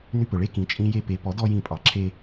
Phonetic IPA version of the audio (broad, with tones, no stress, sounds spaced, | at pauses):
n y˧ p ɵ˩ ɭ e˦˥ k ĩ˩˥ t͡ʃʼ ĩ˦˥ j e˧ p e˩˥ p ɔ˩˥ d ɔ˧ j ĩ˧˩˧ pʼ ɑ˩ ǁʰ e˧